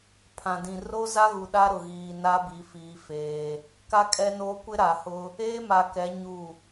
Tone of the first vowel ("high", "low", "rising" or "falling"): low